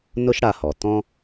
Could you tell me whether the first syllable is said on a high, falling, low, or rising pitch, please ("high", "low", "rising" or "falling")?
high